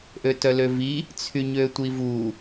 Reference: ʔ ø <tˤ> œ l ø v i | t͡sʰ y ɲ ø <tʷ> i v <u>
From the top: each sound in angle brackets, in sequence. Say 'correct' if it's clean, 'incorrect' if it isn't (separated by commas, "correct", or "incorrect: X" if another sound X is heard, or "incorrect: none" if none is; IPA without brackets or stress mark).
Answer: incorrect: t, correct, correct